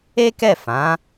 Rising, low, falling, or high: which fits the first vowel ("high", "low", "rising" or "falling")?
high